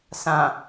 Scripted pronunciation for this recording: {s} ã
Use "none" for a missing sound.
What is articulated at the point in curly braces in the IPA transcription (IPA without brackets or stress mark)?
s